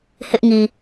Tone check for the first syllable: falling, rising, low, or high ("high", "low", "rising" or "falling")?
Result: high